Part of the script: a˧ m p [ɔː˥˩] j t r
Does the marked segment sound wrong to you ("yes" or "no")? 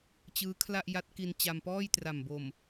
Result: no